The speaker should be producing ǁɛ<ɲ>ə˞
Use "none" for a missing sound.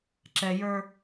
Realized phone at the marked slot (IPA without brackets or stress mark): j